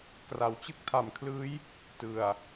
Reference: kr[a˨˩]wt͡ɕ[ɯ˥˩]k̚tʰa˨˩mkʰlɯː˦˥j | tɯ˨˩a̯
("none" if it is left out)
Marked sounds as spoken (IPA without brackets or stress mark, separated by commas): a˩˦, ɯ˥˩